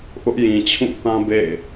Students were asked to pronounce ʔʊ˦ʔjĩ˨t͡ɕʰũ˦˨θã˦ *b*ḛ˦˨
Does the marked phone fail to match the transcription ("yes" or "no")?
no